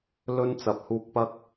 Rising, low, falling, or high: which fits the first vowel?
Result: high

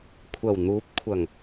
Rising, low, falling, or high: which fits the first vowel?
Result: low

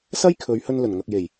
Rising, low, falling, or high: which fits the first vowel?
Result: high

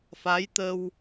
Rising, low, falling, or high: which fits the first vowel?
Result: rising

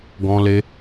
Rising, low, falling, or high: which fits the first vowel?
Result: high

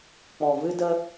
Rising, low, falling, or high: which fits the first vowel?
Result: low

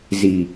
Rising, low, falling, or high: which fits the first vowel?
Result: low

